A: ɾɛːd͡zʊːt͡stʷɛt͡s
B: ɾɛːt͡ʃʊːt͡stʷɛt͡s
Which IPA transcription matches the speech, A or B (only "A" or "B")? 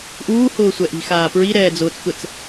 A